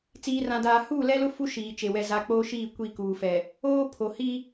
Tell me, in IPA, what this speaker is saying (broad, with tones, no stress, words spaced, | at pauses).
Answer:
t͡siː˨rã˨daː˨ huː˦˨lɛ˦lʊ˦ fu˦ʃiː˨t͡ʃe˨ wɛ˨za˨ k͡poː˦ʃiː˦˨ kʷi˦˨kuː˨fɛ˨ | oː˦ pʰo˨hi˦